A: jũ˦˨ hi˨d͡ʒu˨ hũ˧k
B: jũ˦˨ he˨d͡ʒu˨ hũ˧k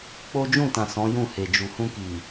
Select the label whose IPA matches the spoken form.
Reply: B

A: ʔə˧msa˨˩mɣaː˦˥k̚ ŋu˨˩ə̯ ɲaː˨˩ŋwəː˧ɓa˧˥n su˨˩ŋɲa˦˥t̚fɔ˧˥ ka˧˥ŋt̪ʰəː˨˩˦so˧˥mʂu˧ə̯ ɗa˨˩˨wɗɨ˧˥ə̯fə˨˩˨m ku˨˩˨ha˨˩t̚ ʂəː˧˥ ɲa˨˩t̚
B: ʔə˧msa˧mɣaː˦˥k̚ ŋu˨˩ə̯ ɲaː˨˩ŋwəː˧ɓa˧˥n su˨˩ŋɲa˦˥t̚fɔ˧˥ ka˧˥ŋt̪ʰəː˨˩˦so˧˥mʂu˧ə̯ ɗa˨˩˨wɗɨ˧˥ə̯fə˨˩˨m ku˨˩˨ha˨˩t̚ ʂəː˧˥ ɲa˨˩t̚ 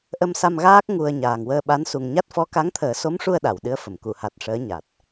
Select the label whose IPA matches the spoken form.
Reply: B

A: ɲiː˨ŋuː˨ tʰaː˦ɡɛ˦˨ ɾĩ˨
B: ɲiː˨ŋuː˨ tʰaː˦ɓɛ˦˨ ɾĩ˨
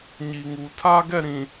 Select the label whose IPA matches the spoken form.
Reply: A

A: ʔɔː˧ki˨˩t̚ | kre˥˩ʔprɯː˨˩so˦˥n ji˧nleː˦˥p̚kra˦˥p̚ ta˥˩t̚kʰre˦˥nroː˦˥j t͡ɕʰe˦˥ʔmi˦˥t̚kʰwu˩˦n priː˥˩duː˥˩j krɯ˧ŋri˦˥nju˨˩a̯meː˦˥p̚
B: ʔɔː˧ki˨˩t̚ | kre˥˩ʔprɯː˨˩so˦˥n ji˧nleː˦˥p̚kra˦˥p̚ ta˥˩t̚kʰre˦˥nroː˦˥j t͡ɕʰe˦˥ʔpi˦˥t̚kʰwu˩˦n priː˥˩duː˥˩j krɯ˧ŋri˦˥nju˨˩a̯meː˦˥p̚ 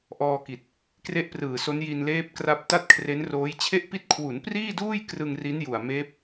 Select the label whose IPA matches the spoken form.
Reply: B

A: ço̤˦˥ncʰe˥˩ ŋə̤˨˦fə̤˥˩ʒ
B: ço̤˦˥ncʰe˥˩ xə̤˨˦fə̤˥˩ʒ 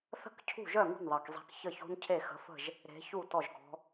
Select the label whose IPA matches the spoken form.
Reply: B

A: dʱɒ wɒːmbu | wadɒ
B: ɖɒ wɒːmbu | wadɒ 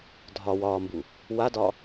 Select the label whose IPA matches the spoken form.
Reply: A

